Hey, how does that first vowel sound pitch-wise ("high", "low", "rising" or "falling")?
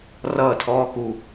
falling